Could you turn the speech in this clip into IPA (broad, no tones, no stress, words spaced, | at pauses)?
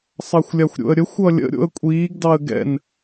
sˤɑxʷlʲaxʷɾʲo̰ə̯ɾʲə xʷʌlʲə̰ ɾʲo̰ə̯kʷʼiːɡ dɑə̯ɡɛ̰n